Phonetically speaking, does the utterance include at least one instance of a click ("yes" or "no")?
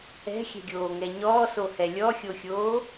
no